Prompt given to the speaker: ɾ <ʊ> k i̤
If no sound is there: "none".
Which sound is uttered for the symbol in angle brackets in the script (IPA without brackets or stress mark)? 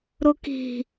ʊ